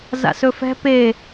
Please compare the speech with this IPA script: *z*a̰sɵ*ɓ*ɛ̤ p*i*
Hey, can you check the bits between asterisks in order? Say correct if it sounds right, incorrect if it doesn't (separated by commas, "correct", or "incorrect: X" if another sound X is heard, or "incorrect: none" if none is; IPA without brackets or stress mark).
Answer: correct, incorrect: f, incorrect: e